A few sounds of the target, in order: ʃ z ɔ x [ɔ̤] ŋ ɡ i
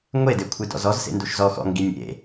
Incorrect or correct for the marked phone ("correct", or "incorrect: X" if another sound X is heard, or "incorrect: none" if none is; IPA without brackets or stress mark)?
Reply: incorrect: ɔ̰